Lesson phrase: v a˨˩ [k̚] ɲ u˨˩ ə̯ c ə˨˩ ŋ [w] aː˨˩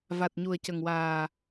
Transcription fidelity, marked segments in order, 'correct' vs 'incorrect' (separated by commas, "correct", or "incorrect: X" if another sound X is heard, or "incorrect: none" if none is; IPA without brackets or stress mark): incorrect: t̚, correct